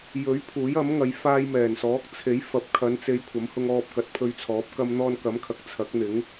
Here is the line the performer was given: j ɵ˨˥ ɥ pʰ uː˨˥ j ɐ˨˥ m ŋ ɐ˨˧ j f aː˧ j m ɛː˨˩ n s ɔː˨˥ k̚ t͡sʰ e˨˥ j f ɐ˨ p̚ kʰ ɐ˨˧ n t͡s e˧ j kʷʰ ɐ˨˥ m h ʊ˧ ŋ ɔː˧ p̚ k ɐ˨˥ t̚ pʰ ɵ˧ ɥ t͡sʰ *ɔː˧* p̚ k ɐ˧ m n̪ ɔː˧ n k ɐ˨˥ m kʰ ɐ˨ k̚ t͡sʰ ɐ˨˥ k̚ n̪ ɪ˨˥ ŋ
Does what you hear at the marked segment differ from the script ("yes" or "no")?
yes